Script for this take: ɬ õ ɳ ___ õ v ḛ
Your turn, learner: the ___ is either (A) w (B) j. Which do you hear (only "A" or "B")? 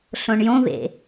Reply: B